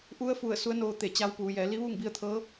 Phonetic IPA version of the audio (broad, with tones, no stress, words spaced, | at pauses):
ʔu˧˥ə̯fu˧˩ə̯ su˧˥ə̯noː˧ t̪e˧˩t͡ɕa˧˥wpuː˩˧ jɛː˩˧li˧˥ʋuː˥˨ŋ bi˧ə̯t̪ʰɤː˧˥